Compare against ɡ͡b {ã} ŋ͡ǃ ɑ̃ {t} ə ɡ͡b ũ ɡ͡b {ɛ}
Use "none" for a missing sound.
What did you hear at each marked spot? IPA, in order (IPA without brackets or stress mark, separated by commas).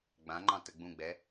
ã, t, ɛ